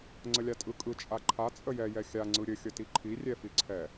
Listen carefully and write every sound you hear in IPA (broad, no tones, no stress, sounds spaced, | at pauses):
ŋ͡ǀ ə lʲ a tʼ ɯ kʼ ɯ t͡ʃʼ a ǃʰ a t͡sʼ ə j ɛ j ɛ xʲ a ŋ͡ǀ ɯ ɾʲ ɘ xʲ ə t i ǃʰ i rʲ ɛ f i ǀʰ ɛ